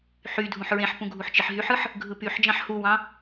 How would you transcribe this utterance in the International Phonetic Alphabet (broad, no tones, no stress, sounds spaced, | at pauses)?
ħ y dʱ ũ ħ ɹ ẽ ħ p ũ ɡʱ u ħ t͡ʃ i ħ ɦ y ħ ɯ ħ | ɡʱ ɯ p y ħ d͡ʒ ɑ̃ ħ h u w ɑ̃